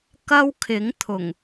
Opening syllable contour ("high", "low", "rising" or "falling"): high